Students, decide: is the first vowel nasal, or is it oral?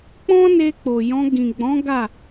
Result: nasal